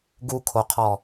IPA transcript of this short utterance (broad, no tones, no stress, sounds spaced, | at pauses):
ɡ u kʰ o qʰ ɔ